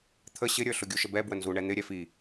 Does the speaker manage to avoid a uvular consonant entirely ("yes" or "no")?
yes